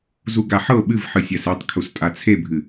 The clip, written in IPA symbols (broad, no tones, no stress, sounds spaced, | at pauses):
z u ɡ a ħ ɤ ɓ ɨ v ħ ɨ sʲ a s e tˤ kʰ u s tʼ a t͡sʰ e bʱ ɨ